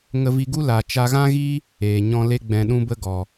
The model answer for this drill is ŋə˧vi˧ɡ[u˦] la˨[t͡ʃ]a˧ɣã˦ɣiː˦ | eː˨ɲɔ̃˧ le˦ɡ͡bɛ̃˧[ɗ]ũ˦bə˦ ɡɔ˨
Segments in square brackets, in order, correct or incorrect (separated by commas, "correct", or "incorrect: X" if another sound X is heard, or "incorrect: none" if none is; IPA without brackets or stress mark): correct, correct, correct